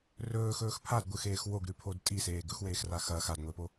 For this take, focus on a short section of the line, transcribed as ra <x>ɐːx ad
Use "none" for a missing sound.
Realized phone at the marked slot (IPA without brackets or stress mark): x